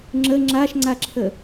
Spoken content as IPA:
ŋ͡ǁ ə ŋ͡ǁ a ʃ ŋ͡ǀ a ǁʰ ə

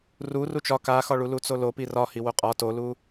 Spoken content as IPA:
r u r u t͡ʃ ɒ k a x ɒ ɭ u l u t͡s o l o p i r ɒ h i w o qʼ ɒ t o l u

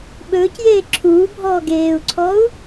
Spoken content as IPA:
ɓ ɵː c j eː ǁʰ uː bʱ ɔː ɡ eː u̯ ǀʰ ɔ u̯

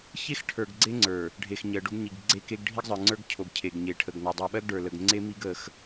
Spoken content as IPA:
ç e˦ x ʈʰ ə˞˨ ɡ ɡ͡ǀ e˦ ŋ͡ǀ ə˞˨ | ɖʱ e˨ x ɲ ɜ˨ ɖ o˦ ɡ ɲ i˨ ɡ ɡ͡ǀ e˦ k e˦ ɡ ɖʱ i˦ ɡ zˤ ə˞˨ ŋ͡ǀ ə˞˦ ɡ cʰ o˨ ɡ cʰ e˨ ɡ ɲ e˨ ʈʰ ə˨ ɡ n ɔ˨ dˤ o˨ ɓ ɜ˦ ɡ ɖ ə˞˨ l ə˨ ɡ ŋ͡ǀ e˦ m i˦ ɡ ə˨˦ x

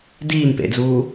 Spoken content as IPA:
d iː m p ḛ d͡z uː

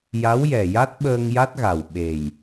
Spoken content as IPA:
j a˧˥ w j ɛ˨˩ j a˦˥ t̚ ɓ əː˧ ŋ j a˦˥ t̚ ɣ a˨˩ w ɓ e˨˩ j

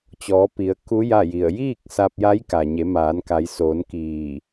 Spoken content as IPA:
t͡ɕ ɔː˩˧ p i˩˧ ə̯ k u˧˥ j a˥˨ j i˧˩ ə̯ j iː˥˨ k̚ s a˧ p̚ j a˧˥ j k a˩ ɲ e˩˧ m aː˩˧ n k a˩˧ j s oː˩˧ n k iː˧˩

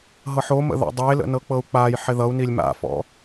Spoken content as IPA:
ɦ ɤ ħ o m ə̰ ð ɔ̰ dˤ e l ə̰ n ɤ k͡p ɤ u̯ k͡p a j ħ ɪ ð ʌ u̯ n i lʲ m a̰ f ɔ̰

